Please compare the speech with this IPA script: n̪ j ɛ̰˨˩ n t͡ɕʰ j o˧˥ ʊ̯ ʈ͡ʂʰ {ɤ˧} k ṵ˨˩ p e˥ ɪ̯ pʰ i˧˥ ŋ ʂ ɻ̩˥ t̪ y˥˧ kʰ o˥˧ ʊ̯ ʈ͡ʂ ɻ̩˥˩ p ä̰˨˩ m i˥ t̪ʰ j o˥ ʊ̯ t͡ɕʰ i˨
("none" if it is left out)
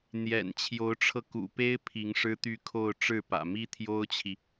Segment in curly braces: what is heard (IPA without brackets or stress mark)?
ɤ˧